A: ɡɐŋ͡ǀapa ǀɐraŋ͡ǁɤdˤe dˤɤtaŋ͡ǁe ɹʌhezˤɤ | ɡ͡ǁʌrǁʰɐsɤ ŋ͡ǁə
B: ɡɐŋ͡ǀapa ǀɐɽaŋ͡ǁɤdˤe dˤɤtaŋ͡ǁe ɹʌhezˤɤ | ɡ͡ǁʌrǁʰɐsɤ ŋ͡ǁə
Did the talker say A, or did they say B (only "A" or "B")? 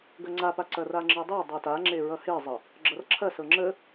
A